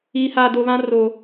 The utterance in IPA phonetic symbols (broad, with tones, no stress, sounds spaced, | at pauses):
iː˨ h aː˨ d o˨ β ã˦ r o˨